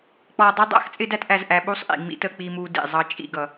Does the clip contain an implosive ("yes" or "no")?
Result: yes